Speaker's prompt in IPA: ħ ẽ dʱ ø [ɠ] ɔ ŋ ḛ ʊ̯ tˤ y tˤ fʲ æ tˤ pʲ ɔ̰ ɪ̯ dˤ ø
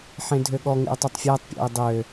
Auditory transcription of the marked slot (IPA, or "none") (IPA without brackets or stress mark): ɠ